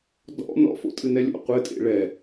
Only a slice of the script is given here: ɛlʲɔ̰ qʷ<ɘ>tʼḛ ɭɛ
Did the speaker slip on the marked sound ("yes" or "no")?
no